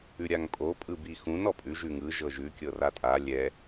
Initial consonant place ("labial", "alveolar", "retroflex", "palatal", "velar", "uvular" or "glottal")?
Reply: alveolar